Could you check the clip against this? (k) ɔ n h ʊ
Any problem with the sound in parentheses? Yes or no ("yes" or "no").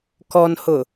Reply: no